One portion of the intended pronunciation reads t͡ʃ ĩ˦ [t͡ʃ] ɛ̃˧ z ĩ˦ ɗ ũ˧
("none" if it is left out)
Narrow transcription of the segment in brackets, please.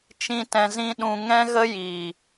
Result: t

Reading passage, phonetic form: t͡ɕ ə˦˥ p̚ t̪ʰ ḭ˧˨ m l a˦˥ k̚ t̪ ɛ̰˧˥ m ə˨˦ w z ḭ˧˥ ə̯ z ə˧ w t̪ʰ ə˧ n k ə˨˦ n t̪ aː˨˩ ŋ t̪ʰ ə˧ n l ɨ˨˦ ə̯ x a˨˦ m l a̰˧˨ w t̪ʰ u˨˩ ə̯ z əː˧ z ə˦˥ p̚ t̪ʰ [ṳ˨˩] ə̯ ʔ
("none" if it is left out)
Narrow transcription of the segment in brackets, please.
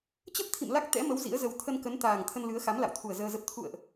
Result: ṵ˧˨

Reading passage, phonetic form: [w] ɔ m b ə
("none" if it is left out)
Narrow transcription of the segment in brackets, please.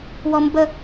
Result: w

